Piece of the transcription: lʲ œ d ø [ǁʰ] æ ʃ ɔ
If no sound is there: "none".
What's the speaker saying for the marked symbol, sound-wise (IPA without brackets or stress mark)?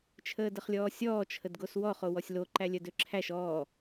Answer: ǁʰ